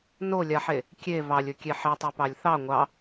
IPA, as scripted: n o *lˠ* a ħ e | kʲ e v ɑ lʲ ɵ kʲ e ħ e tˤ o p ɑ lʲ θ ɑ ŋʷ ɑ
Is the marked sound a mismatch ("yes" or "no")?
yes